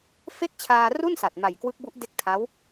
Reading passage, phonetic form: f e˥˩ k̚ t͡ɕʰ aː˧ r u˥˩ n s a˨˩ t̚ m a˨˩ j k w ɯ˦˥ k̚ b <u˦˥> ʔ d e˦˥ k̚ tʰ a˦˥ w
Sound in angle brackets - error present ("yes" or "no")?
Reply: no